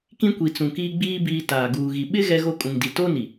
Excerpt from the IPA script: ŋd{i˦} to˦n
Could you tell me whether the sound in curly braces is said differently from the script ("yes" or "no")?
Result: yes